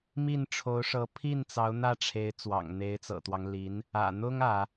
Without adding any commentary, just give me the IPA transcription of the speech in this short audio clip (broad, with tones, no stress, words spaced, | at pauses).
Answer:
mi˥˩nʈ͡ʂʰo˧˥ʊ̯ʂɤ˧˥ pʰi˥˩n t͡sɑ˧˥ʊ̯n̪ä˥˩ʈ͡ʂʰe˧˥ɪ̯ t͡swɑ̰˨˩ŋn̪e˧˥ɪ̯t͡sɤ̰˨˩t̪wɑ˦ŋ li˧˥n | ä̰˨˩n̪ʊ˥ŋ ä˧˥